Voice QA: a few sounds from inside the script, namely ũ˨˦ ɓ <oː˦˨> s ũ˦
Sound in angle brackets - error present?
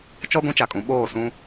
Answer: no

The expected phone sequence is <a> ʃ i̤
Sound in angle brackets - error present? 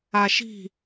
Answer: no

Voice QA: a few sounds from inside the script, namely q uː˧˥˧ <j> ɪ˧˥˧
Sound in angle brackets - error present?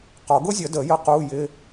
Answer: no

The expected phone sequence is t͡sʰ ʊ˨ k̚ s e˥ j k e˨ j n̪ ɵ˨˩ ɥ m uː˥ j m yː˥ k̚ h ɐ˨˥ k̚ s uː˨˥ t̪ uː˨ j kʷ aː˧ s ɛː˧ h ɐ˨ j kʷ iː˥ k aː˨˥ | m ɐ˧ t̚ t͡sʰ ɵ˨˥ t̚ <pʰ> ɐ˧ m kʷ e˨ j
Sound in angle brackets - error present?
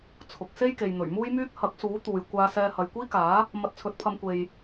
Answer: no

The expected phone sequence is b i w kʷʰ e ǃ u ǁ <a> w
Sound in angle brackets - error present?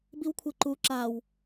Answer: no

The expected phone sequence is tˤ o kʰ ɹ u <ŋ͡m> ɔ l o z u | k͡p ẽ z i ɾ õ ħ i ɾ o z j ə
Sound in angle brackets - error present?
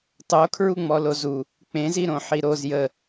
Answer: no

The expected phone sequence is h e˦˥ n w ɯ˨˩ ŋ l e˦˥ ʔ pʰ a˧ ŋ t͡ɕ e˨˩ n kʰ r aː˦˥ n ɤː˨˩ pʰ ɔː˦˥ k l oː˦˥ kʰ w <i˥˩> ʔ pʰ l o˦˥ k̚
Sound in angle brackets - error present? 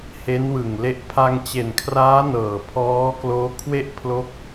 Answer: yes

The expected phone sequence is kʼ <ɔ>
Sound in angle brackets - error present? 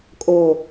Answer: yes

